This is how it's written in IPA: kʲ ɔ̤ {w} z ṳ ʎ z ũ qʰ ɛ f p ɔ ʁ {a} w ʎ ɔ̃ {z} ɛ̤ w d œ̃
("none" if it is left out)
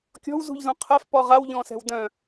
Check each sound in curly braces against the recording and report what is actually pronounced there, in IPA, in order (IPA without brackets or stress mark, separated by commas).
w, a, s